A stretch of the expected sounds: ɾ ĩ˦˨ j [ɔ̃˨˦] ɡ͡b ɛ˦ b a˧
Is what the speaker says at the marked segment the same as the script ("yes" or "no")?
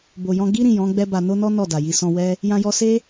yes